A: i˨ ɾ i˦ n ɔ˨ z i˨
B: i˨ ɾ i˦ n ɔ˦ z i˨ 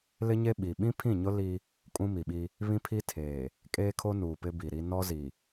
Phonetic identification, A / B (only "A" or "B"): B